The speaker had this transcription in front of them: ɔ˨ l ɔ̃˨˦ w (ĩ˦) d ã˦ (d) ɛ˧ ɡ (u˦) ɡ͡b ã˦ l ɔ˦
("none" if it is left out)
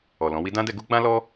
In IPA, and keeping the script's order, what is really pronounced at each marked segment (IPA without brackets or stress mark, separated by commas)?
i˦, d, u˦